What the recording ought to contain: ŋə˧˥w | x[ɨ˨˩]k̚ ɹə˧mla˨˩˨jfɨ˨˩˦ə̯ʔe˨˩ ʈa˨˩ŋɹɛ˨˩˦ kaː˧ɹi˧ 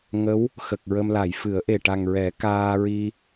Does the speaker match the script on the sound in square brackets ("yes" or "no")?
no